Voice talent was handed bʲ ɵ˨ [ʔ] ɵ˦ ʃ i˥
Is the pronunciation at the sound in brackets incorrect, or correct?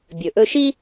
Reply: correct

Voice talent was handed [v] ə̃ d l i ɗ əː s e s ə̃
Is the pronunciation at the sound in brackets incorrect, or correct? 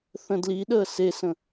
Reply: incorrect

